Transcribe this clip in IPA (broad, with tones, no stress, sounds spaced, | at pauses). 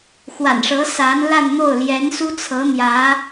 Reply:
x w a̰˨˩ n ʂ ɤ˧˥ s a˧˥ n l a˥˧ n n̪ o˥˩ ʊ̯ l j ɛ˧˥ n s u˥ t͡sʰ ɤ˧˥ n̪ j ä˧˥